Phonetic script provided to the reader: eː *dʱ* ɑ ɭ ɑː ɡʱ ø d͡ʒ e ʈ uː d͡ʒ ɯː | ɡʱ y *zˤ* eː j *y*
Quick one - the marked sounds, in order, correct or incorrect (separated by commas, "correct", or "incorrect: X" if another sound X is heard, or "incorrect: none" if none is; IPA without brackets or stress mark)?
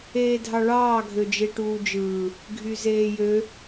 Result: correct, incorrect: z, incorrect: ø